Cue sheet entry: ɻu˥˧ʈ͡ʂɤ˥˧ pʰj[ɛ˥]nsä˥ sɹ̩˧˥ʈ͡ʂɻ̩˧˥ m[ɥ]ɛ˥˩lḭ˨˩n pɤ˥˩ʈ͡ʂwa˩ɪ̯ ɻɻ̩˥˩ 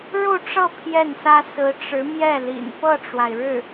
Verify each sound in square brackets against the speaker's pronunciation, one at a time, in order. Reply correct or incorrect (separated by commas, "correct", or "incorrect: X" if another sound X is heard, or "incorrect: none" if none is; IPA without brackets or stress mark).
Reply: incorrect: ɛ˥˩, incorrect: j